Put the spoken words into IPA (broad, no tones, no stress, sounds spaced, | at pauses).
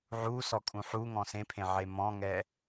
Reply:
ʕ u s ɔ kʼ ũ ħ u ŋ ɔ̃ s ẽ pʰ ẽ ʕ e m ɔ̃ ŋ ɛ